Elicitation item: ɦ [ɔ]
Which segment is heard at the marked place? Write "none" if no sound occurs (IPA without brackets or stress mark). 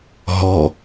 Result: ɔ